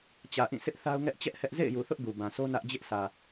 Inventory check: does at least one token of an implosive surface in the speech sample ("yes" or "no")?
no